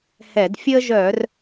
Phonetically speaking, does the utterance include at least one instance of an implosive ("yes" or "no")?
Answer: no